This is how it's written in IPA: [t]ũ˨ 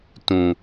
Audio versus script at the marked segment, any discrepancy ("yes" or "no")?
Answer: no